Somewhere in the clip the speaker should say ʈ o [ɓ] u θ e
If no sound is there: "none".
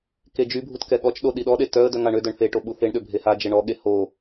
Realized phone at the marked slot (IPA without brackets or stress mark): ɓ